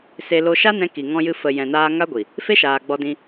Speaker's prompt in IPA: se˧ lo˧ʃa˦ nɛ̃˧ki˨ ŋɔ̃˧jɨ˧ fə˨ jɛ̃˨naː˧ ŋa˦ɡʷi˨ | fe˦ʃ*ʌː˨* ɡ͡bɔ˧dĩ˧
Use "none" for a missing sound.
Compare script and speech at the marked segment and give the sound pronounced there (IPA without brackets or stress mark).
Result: aː˨